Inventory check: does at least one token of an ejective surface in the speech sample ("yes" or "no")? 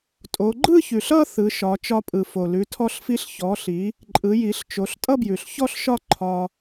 yes